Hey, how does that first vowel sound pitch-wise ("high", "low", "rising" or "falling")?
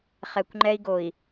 low